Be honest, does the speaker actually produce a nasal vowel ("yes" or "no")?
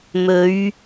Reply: no